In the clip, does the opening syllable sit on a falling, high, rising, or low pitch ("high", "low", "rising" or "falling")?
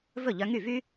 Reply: falling